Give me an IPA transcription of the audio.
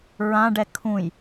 ɹ ã ɖ ɛ kʰ ũ j

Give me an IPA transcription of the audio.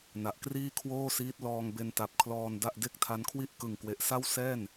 n a˨˩ ʔ k r iː˥˩ kʰ w oː˥˩ s iː˦˥ t̚ l ɔː˧ ŋ b e˧ n t a˨˩ p̚ kʰ l ɔː˧ n d a˥˩ ʔ d e˥˩ k̚ tʰ a˦˥ n kʰ w i˥˩ ʔ k ɯ˨˩ ŋ k w e˨˩ ʔ s a˥˩ w s ɛː˥˩ n

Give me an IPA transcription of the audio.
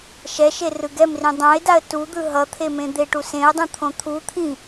ʃ ɛ ʃ e r ɯ ɡ ɛ m r ĩ dˤ ã ɪ̯ d a ə̯ t u d̪ ɯ ɦ ʌ t̪ʰ e m ẽ d̪ e ʈ u s ẽ ə̯ dˤ ũ t̪ʰ õ t̪ʰ u t̪ʰ ĩ

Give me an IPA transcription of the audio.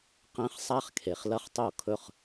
q ẽ˧˥˧ χ sˤ a˥ χ kʰ e˨ χ l ɐ˥ χ tˤ o˥˨ kʰ ɵ˥˨ χ

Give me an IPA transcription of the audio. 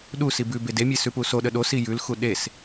ɗ u s i b ʉ b e d e mʲ e s ʉ p u s o ɗ ə ɗ o s i j ʉ l x u ɗ e s

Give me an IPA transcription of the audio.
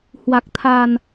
h w a˨˩ k̚ t̪ʰ a˨˩ n

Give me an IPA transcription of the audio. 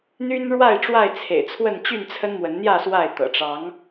n̪ y˦ n ɻ w a˥˨ ɪ̯ ʈ͡ʂ w a˥˨ ɪ̯ t͡sʰ ḛ˨˩ ɪ̯ t͡sʰ w ə˥˨ n t͡ɕ y˥˨ n t͡sʰ ə˦ n m w ə˨˦ n n̪ j ä˥˨ s w a˥˨ ɪ̯ t̪ ɤ̰˨˩ ʈ͡ʂ ɑ˨˦ ŋ

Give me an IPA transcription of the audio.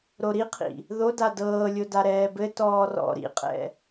ɾ o ɾ i qʰ ḭ | ð o d a d ɤː lʲ o d a ɾ ɛː b ɘ t ɔː r ɔ̰ ɾ ḭ qʼ ɛ̰

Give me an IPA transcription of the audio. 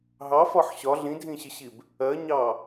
ɦ ɑ f ɒ ħ ɕ ɒ ɮ ĩ dʱ ĩ ɕ ɪ ɕ i b | ɜ ɲ ɑ

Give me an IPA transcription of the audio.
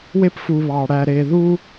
w e˦ p f u˨ β ɑ˨ ɽ æ˨ ɾ e˨ ð u˦

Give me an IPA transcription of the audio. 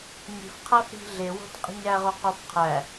ɲ i̤ f qʰ æ f ɾ i̤ ɮ e w o̤ t qʼ i̤ ɲ æ ʁ o q o f qʰ æ

